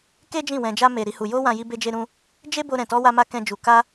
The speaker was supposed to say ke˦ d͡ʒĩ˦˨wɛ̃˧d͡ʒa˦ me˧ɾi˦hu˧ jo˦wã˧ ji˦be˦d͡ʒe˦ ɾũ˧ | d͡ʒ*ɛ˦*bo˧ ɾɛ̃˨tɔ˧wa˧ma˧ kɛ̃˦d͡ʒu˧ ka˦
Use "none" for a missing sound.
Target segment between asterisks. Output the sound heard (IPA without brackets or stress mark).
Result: e˦